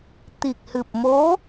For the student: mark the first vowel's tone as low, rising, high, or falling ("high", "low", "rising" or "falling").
low